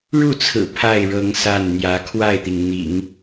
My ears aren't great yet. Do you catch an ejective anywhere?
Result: no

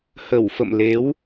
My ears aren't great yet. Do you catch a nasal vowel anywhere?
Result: no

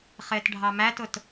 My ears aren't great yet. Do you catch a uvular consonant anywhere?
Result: yes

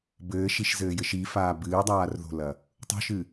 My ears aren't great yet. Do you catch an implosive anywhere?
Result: no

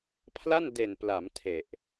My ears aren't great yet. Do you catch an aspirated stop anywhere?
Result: yes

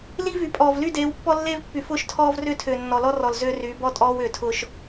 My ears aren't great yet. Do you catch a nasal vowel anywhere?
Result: no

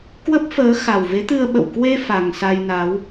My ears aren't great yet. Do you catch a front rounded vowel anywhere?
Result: no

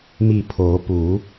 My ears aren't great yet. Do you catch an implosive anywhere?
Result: no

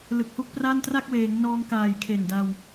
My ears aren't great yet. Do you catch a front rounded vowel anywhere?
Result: no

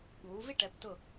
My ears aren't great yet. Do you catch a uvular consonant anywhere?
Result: no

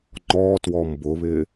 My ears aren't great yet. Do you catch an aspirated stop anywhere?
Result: no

